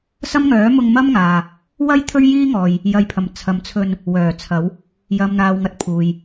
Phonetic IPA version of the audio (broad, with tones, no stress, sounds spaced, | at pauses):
s ɐ˥ m ŋ œː˨˥ m ʊ˧ ŋ m ɐ˥ m ŋ aː˨ | w ɐ˥ j t̪ʰ ɵ˥ ɥ j iː˥ ŋ ɔː˨ j | j ɐ˨ j pʰ ɐ˨˩ m t͡sʰ ɐ˨˧ m t͡sʰ ɵ˧ n | w œː˨˩ t͡sʰ ɐ˨˧ w | j ɐ˨ m n̪ aː˨ w ŋ ɐ˧ t̚ pʰ uː˨ j